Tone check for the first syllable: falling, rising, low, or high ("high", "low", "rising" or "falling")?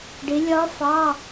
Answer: rising